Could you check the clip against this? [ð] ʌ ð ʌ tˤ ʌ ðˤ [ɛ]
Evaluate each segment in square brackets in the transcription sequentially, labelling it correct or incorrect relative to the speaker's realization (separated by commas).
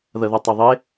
correct, incorrect